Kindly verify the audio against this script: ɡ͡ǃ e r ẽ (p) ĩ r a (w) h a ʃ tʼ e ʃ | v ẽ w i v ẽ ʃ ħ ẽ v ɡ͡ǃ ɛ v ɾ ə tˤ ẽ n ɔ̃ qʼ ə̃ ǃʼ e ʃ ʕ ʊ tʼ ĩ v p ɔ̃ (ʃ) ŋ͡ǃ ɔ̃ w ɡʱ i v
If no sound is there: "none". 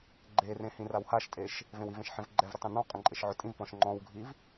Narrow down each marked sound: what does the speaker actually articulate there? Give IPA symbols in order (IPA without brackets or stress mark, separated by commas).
h, w, ʃ